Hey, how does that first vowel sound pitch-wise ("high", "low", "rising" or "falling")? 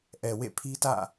low